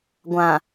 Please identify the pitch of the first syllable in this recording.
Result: low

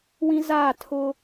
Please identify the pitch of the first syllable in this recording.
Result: high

